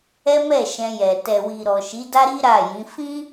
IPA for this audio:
ɛ˦mɛ˦˨ʃɛ̃˧jɛ˨ tɛ˨wi˨ɾɔ˨ʃi˨˦ da˦ɾi˦ ɾa˦˨jĩ˨˦ fĩ˦

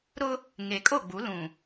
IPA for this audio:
ɾʊ˦ | ŋe˨kʼo˦˨ɡ͡bu˨˦ lũ˨

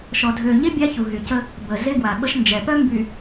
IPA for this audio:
ʃɔ˨dʱø˨ɲe˦ bʲa˦çu˨ɦy˨cə˦ | bə˨ ze˦ɡwa˨ɓə˦ʃ nd͡ʒɛ˨pœ˦ mby˨

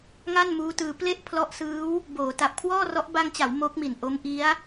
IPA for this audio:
ŋa˥˩nmuː˦˥tɯː˧ ple˥˩ʔ pʰlɔ˦˥ʔsɯː˦˥w | boː˩˦ ta˨˩p̚kʰwɔː˥˩rɔ˦˥ʔ ba˧ŋt͡ɕa˩˦w mo˦˥k̚mi˨˩n ʔo˦˥mʔi˦˥a̯

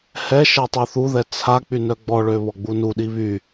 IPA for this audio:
hɛʃɛ tˤuθuðɛ t͡sʰak͡py nœɡ͡bɔɭø βɔɡ͡bunuɗi βy

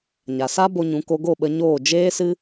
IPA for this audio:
ɲa˨sa˦ bo˧ɲũ˨˦ ko˧ɡo˦˨ɓə˧ɲoː˦˨ d͡ʒeː˦sɨ˦

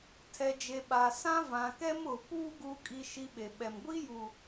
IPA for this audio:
tʰɛ˨d͡ʒe˨ ɓa˨sã˦ vã˨ kɛ˦mʊ˨puː˦ ɡuː˨kʼi˨ʃi˨ ɓe˨ɓɛ˨m ɡʷi˦ju˨

